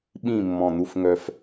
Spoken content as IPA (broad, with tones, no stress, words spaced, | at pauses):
ɓĩ˥˨ mːɔ̃˧˩n̪u˦fŋœ˦f